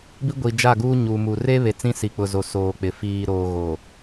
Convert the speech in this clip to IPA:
b i˦ ɡʷ i˨ d͡ʒ a˦˨ ɡ uː˦ ɲ u˨ m u˨ r e˦ β e˨ t͡s ĩ˦ s i˨ k͡p ʊ˨ z o˨ s oː˨ k͡p ɪ˨ f iː˨ ɾ oː˨ ɣ o˨

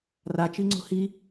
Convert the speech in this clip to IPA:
r a t͡ʃ i ŋ͡ǀ o̤ h i

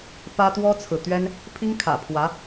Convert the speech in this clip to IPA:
p ä˥ t̪ w ɔ˥ t͡sʰ ɹ̩˨ t̪ ɥ ɛ˥ n | pʰ i˥ ŋ kʰ ä̰˨˩ pʰ w ä˧˥

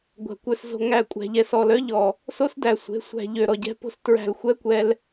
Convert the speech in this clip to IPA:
ɡʷ æ̤˨ kʷ œ˧ s z o̤˧ ŋ æ˦˨ kʷʼ æ̤˧ ʎ ɛ˧ s ɔ˨ l œ˦ ʎ ɔ˨ | s o˦ s d æ˨ sʷ e̤˨˦ sʷ æ̤˧ ʎ ø˨ ɾ ɔ˨ ɟ ɛ̤˧ p o̤˧ s t ɹ æ̤˧ l xʷ ɛ˦ kʷ ɛ˧ l

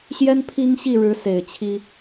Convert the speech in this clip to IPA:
ɕ j ɛ˥ n pʰ i˥ ŋ ɕ i˥˩ ɻ ɻ̩˧˥ s e˨˩ ɪ̯ t͡ɕʰ i˥

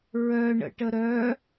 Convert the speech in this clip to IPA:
ɹ œ ɳ ə̰ ʈ ə ɾ œ

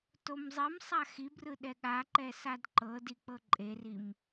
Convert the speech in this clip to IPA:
t o m zˤ i m sˤ a x i b r ɯ ɗ ɛ ɠ a ǃ ɛ s a d ǃ ɤ d i k͡p ɤ ǃʼ e r i m

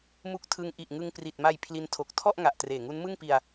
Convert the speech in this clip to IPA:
m u˦˥ k̚ tʰ ɯ˧ ŋ ʔ i˨˩ ʔ ŋ ɯ˧ ŋ p r i˨˩ t̚ m a˧ j pʰ l i˦˥ n tʰ o˨˩ k̚ tʰ ɔ˥˩ ʔ ŋ a˨˩ ʔ t r eː˨˩ ŋ u˦˥ n m ɯ˥˩ ŋ p i˧ a̯

